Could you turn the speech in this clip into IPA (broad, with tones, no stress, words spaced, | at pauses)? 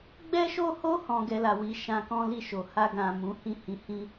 ɡ͡bɛ˦ʃo˦ho˦ hɔ̃˧ɡɛ˧la˨wi˧ ʃã˧kɔ̃˦li˦˨ʃo˨ ha˧ɡã˨ mũ˨˦hĩ˦˨hĩ˧ hĩ˧